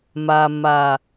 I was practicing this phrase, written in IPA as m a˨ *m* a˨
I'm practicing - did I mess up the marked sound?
no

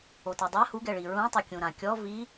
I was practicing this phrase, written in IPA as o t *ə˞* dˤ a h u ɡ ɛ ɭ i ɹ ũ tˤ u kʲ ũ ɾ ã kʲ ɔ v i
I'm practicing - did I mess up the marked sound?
yes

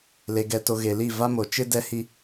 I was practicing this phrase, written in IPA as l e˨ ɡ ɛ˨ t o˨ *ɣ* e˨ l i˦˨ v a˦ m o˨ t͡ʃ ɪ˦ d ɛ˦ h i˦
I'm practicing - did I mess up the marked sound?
no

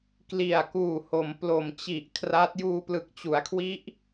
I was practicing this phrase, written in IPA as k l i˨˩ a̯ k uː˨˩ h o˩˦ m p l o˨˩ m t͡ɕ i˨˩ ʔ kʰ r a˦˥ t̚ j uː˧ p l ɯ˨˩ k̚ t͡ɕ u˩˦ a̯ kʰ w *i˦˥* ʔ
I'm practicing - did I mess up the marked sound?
no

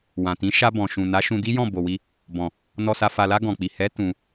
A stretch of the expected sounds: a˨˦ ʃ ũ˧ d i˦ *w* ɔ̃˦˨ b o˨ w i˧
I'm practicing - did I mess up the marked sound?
yes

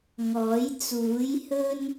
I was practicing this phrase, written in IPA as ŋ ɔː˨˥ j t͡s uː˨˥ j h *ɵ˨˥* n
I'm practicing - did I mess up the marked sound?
yes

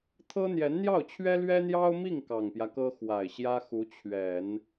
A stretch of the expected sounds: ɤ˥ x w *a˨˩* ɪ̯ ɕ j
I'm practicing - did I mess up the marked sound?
no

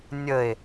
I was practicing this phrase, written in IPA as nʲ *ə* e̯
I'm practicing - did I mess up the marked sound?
no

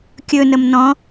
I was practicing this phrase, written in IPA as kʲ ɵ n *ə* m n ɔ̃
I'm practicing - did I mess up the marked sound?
no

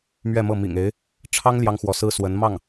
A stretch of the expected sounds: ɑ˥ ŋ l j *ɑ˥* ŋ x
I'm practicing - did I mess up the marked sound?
no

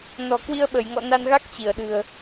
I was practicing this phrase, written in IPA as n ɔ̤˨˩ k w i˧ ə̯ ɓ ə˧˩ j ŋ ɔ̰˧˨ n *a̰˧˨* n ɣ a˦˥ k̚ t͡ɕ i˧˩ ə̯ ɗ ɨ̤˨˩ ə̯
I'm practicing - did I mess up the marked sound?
yes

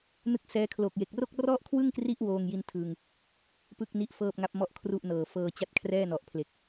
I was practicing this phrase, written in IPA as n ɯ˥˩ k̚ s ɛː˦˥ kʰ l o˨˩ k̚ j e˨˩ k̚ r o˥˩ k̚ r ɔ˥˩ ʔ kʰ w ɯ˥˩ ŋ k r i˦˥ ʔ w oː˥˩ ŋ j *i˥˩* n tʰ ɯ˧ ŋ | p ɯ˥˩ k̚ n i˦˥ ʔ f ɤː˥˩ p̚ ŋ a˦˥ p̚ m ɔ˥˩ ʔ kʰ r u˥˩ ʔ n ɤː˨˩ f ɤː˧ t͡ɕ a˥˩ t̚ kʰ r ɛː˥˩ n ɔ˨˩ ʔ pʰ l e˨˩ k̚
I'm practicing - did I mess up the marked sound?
no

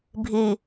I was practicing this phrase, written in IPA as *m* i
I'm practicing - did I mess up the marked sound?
yes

